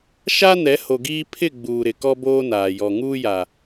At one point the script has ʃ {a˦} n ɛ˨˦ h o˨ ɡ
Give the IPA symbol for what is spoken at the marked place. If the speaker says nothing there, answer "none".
a˦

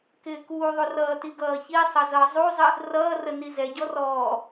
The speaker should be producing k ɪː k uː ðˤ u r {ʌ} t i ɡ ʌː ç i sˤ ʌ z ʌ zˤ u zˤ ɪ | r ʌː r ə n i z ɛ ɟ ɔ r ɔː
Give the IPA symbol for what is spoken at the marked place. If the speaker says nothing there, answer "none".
ʌː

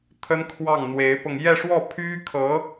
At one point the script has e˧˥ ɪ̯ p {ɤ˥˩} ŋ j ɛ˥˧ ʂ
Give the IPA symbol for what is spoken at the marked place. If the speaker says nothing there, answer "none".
ɤ˧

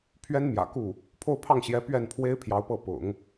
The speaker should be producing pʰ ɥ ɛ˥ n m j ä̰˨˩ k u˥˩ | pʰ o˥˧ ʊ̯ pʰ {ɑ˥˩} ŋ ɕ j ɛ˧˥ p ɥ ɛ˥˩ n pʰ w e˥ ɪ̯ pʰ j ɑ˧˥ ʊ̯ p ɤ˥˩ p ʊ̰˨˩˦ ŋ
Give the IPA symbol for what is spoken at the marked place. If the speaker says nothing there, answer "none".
ɑ˥˩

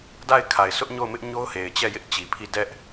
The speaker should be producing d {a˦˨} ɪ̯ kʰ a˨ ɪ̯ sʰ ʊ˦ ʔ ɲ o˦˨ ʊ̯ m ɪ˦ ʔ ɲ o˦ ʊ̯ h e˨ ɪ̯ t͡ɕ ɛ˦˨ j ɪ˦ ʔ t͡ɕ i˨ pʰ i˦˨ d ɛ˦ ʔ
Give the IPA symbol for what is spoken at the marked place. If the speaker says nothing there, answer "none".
a˦˨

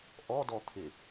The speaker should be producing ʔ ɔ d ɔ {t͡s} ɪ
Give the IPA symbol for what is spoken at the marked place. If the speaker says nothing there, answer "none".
t̪ʰ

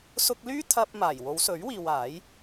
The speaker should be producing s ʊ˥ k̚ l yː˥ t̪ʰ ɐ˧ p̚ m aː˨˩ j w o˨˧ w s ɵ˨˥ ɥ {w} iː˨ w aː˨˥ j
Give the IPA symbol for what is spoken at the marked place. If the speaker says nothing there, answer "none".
w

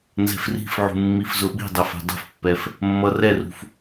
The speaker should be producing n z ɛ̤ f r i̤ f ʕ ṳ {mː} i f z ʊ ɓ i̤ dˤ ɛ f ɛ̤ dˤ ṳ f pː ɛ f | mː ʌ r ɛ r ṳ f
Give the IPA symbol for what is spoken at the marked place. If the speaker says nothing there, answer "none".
mː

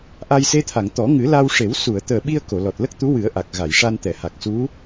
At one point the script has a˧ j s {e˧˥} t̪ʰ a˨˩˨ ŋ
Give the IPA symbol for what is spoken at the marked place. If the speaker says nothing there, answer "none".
e˧˥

